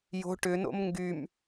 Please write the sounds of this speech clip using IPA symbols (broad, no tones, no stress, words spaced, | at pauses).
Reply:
jo̤ ʈʏno̰m ŋɡym